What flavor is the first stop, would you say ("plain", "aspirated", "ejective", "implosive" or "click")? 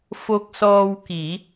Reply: plain